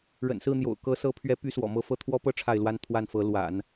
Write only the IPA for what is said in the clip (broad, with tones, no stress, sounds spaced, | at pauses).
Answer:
ɻ ə̰˨˩ n s ɹ̩˥˩ n̪ j o̰˨˩ ʊ̯ k ɤ˧˥ s ɤ˧˥ pʰ ɥ ɛ˧˥ p y˥ s w ɔ̰˨˩ m ɤ˥˧ f ɤ˥˩ t̪ʰ w ɔ˥ p ɤ˥ ʈ͡ʂʰ a˥˩ ɪ̯ l w a˥ n t̪ʰ w a˥˩ n f ɤ˧˥ l w a̰˨˩˦ n